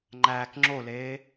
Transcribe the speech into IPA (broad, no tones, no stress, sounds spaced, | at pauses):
ŋ͡ǃ æː k ŋ͡ǁ o l eː